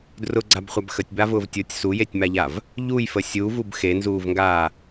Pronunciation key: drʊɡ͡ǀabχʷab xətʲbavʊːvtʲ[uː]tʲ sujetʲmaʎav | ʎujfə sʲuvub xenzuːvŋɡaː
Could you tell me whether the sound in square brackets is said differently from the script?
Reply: yes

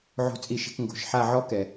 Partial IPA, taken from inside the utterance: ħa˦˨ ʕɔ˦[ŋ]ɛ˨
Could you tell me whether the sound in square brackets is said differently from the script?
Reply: yes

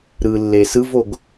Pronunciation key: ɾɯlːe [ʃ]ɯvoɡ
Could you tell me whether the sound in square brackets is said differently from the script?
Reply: yes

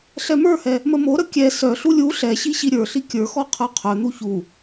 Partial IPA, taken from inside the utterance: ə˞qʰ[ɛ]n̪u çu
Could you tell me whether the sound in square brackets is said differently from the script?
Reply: yes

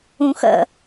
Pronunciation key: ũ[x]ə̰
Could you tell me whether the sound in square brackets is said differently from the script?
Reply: no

